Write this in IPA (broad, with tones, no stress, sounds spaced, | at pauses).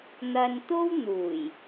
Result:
n̪ ɐ˧ n t̪ o˥ w n̪ uː˨˩ j